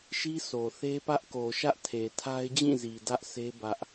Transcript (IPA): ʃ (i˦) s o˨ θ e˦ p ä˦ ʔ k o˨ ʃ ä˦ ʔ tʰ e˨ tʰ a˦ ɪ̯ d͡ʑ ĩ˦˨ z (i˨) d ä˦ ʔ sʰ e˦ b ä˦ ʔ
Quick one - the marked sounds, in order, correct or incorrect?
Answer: correct, correct

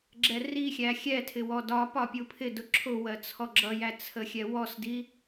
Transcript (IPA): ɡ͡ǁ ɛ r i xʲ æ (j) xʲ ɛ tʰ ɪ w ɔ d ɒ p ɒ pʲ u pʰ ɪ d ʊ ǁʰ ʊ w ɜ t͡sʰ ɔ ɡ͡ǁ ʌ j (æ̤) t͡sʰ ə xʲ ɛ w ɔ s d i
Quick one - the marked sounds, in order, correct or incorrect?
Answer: incorrect: none, incorrect: æ

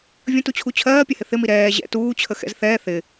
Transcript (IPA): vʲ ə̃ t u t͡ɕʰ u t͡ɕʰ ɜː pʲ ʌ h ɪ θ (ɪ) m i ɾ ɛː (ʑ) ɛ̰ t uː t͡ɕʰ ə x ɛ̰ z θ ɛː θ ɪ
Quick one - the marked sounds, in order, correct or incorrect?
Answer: correct, correct

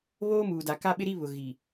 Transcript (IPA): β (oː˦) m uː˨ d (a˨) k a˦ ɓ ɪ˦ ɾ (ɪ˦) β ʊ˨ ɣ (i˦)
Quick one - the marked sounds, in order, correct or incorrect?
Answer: correct, correct, incorrect: i˦, incorrect: i˨

